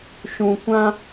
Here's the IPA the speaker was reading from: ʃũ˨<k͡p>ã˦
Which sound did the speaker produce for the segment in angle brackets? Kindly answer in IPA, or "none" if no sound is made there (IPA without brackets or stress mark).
kʷ